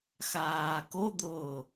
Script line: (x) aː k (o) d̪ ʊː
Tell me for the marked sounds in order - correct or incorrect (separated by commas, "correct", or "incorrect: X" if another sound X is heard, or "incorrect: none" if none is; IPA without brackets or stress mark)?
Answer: correct, correct